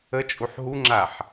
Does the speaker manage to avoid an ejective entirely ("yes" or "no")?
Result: no